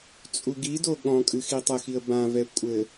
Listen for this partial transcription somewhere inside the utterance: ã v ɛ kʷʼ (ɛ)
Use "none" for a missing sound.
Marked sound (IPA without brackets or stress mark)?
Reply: ɘ